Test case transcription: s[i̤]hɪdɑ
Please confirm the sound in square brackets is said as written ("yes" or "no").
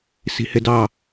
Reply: yes